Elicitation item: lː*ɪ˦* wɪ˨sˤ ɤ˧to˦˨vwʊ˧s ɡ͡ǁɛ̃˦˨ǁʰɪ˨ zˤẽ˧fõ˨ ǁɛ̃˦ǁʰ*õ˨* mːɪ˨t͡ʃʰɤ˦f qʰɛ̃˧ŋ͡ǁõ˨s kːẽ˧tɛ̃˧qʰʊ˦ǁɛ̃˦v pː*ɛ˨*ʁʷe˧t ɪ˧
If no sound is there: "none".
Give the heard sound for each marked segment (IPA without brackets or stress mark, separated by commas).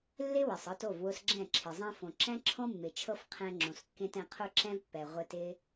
ɪ˦, õ˦, ɛ˨